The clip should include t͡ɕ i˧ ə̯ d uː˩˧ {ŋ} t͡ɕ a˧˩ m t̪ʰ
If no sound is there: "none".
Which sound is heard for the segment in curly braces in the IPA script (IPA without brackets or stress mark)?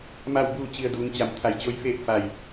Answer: ŋ